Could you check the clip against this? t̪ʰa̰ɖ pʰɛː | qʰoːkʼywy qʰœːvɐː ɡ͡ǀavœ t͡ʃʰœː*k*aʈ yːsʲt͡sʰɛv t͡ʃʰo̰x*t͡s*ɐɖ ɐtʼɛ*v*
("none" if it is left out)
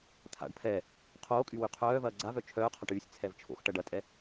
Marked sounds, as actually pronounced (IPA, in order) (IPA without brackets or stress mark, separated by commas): qʰ, ʈ, none